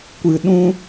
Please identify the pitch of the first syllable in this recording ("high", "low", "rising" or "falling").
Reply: low